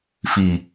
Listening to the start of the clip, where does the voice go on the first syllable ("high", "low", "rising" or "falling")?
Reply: low